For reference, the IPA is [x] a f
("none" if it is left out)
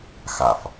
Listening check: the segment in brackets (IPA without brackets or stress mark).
x